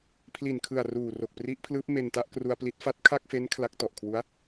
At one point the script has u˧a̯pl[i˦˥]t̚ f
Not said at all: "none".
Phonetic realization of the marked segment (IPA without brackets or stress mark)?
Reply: i˦˥